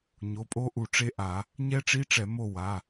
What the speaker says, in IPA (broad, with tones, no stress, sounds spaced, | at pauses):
ɲ o˩˧˩ pʼ o˦˥ ʔ u˧˩˧ ʈ͡ʂ e˦˥ ʔ a˧˩˧ | ɲ ɛ˦˥ ʈ͡ʂ i˧˥˧ ʈ͡ʂ ɛ˧˩˧ m o˦˨ w a˩˧˩